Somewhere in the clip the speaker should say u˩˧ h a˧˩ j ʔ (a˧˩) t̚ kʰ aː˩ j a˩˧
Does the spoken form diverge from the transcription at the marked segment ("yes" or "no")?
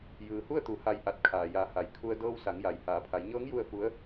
no